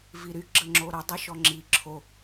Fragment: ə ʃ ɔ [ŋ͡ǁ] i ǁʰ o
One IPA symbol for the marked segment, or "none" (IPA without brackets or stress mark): ŋ͡ǁ